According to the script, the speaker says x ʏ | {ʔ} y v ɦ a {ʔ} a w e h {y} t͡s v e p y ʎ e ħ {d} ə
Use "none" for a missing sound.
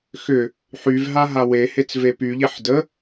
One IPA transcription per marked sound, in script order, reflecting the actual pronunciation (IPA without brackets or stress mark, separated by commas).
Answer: ħ, ɦ, e, d